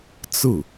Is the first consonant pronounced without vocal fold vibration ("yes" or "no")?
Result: yes